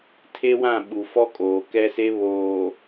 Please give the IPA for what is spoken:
tʰe˦wã˦˨ ɓu˨fɔ˦ kʼoː˨kɛ˦se˦ βoː˨

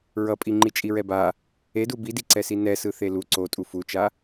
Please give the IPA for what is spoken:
ɹʌpʼi ŋ͡ǃit͡ʃʼiɹɛba | edu bidiǀɛsi nɛsɯ θelu ǀotʼu fut͡ʃa

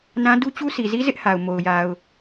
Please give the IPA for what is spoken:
nã˦ du˦t͡ɕu˦ si˨zi˦ zɪ˦ʔha˨ʊ̯ mo˨ʊ̯ ja˨ʊ̯

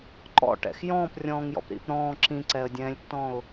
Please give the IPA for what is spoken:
ǃɔ̰ʈɛ̰x jɔ̃ːprʲɔ̃ːŋjɔ̰p ɾḭp ɾɔ̃ː ǁĩǀɛə̯dʲɛ̃ːlʲtːɔ̃ʊ̯

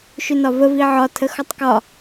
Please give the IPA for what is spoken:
ʃʏnɒvə viʕɒtʰəxɔtˤ kɒ

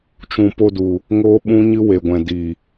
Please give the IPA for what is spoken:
t͡ʃũ˨po˧du˨ | ŋoː˦ɓũ˦ɲɨ˦ we˨ɡʷɛ̃˨diː˨

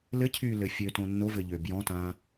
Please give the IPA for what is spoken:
lɘcʰyːlɘ fʲøtõ nːovɘʎø bjɔ̃tãː

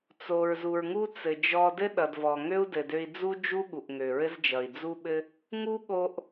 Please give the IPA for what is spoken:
t͡so˩ɹzu˩ɹ ŋu˥ t͡sɘ˩d͡ʒɔ˧ dɘ˥ɗʌ˩dvɔ˩ŋø˥u̯ dɘ˩dø˧i̯ d͡zu˥ d͡ʒu˥ɠu˩ʔŋø˩ ɹɘ˥zd͡ʒʌ˩i̯ d͡zu˥ɓɘ˥ | ŋu˥ɠo˧ʔ

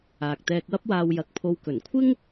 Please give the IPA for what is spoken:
aː˨k̚t̪ɛː˧k̚wɐ˥p̚waː˧w jɐ˨˥k̚pʰo˧w kɵ˨˩nkʷʰɪ˥ŋ

